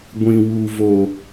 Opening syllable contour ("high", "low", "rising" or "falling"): low